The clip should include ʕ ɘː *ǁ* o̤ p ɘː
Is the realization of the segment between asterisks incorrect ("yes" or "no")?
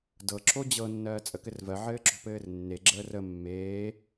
no